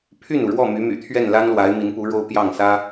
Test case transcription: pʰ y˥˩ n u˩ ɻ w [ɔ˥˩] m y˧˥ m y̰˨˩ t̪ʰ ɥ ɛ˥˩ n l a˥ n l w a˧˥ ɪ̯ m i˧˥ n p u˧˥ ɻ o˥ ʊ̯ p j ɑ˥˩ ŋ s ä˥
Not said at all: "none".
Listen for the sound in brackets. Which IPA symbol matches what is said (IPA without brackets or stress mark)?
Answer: ɔ˥˩